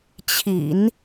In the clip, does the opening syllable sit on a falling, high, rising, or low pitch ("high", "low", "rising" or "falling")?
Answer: low